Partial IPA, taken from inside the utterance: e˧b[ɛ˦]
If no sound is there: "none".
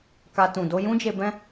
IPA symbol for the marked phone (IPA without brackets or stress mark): ɛ̃˦